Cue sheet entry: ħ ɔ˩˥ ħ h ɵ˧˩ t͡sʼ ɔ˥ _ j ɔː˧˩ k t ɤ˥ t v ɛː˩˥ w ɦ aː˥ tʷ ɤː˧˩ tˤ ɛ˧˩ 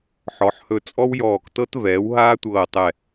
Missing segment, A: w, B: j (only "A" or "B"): A